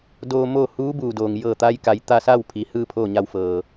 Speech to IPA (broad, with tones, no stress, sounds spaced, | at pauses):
d oː˧ m oː˥˨ h uː˧˥ b uː˩ d oː˩ ŋ j ɤː˧˩ t̪ a˧ j k a˩˧ j t̪ a˧ s a˥˨ w pʰ i˩˧ h ɯː˥˨ pʰ oː˥˨ ɲ a˧ w f ɤː˩